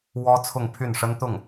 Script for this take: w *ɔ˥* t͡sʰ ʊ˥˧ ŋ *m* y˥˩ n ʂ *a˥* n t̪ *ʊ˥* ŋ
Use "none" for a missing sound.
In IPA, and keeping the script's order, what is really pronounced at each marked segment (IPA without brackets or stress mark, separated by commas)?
ɔ˥, pʰ, ə˥, ʊ˥˩